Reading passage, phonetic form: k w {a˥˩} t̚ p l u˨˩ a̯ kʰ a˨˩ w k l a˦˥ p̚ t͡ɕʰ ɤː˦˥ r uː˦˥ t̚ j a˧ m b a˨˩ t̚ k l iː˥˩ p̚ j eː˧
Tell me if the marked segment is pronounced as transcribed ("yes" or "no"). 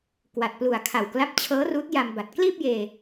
no